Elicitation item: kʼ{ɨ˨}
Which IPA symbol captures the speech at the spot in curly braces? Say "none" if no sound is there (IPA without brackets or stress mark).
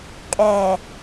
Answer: ɛ˨